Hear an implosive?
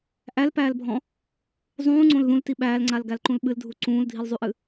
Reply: yes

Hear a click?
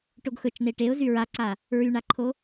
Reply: yes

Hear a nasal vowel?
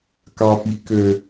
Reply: no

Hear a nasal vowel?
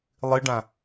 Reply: yes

